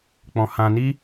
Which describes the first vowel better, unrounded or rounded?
rounded